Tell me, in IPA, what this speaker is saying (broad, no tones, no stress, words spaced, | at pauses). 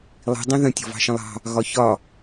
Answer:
lˠi̤ dˤĩðə̃ tʲɔ̤vɑ̤ʃə̃lˠɑ̤ | ɣɒçɒ